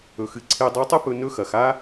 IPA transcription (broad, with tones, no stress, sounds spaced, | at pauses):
ɵ˩˧ x ɨ˧ ǀʰ e˧ dˤ o˧˥ tˤ ɨ˥ p ɵ˧ n ɵ˧˥ x ɐ˩˧ x a˥